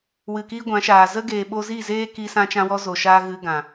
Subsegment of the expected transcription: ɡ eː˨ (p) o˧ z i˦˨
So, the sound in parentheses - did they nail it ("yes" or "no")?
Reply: no